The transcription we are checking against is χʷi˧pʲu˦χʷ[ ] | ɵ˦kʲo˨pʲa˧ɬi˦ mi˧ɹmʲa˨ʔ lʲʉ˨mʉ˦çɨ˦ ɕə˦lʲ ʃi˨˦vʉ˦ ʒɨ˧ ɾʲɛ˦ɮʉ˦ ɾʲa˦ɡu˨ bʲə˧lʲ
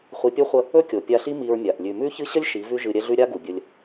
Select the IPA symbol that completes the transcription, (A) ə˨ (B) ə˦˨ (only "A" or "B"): B